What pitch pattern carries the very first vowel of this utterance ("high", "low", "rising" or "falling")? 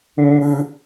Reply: high